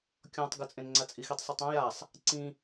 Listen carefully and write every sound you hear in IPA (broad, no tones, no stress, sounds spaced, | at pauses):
kʲ ɔ̃ tˤ ɡ ʊ t͡sʼ ẽ n ŋ͡ǀ a t͡sʼ i x i tˤ sˤ ʊ tˤ ã j a sˤ | ǀ ĩ